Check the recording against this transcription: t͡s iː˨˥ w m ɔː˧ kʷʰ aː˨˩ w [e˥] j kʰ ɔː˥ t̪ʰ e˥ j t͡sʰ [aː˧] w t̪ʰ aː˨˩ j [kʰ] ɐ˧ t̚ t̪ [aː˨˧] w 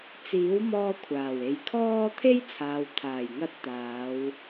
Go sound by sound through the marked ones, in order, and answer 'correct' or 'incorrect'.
incorrect: e˨, incorrect: aː˨, incorrect: ŋ, correct

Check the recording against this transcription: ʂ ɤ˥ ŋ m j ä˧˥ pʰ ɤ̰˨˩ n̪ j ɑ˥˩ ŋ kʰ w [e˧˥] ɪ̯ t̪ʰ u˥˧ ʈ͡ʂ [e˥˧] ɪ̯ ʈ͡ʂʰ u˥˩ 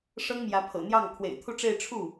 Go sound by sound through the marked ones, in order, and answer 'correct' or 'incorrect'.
incorrect: ḛ˨˩, correct

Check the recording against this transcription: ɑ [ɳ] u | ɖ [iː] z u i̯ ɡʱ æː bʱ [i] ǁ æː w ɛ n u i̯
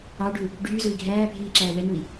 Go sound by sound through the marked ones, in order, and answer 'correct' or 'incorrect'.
incorrect: ɖ, incorrect: yː, incorrect: iː

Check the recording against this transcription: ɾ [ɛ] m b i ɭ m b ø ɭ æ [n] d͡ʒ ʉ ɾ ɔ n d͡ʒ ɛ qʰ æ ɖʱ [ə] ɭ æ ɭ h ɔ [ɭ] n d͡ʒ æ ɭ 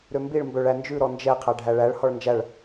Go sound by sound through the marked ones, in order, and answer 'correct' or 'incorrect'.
incorrect: ø, correct, incorrect: æ, correct

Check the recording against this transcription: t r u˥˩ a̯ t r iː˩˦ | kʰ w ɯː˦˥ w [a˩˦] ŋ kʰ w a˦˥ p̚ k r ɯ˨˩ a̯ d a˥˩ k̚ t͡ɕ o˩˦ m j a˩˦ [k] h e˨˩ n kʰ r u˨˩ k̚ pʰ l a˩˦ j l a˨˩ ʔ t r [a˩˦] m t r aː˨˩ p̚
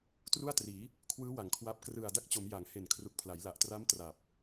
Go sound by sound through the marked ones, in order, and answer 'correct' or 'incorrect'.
correct, incorrect: ŋ, incorrect: a˦˥

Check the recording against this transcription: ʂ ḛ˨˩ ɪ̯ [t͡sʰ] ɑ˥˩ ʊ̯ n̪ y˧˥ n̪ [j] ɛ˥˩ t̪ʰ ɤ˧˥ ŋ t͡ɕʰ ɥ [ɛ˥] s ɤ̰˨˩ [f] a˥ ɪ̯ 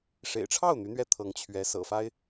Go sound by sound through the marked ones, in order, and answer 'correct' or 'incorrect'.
incorrect: ʈ͡ʂʰ, incorrect: ɥ, incorrect: ɛ˧˥, correct

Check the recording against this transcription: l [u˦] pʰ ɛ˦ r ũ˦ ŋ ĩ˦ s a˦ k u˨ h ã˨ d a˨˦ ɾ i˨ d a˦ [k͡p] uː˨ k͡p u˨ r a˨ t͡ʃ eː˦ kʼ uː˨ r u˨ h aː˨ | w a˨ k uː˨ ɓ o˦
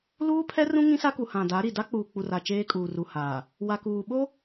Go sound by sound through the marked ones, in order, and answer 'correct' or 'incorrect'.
incorrect: uː˦, correct

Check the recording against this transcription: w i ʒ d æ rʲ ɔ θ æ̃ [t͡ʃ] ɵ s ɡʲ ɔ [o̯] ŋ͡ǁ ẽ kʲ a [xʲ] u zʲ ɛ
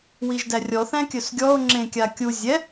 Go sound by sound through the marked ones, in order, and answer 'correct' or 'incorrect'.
incorrect: kʲ, correct, incorrect: kʲ

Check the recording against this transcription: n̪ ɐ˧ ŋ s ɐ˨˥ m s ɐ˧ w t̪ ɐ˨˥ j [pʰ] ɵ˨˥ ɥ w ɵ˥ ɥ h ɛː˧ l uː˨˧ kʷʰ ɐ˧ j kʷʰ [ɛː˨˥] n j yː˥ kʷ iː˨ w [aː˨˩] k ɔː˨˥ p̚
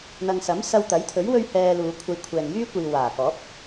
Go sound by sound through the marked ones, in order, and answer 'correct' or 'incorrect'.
incorrect: t̪ʰ, incorrect: ɛː˨, correct

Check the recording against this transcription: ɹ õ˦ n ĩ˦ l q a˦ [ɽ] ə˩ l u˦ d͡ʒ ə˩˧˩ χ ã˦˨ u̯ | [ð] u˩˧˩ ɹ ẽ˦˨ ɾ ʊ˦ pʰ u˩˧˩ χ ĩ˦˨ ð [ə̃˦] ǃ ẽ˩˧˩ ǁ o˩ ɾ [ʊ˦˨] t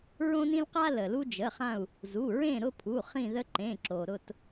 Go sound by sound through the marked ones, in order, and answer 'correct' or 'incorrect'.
incorrect: l, incorrect: z, incorrect: ə˦, correct

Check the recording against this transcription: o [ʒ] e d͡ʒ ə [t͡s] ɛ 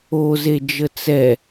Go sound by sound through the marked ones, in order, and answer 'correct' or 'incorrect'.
incorrect: z, correct

